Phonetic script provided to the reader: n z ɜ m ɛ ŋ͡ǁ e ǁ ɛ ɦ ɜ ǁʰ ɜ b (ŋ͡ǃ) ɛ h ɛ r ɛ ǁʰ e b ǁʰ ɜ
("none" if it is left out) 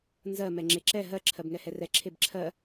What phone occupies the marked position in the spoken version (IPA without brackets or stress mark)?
ŋ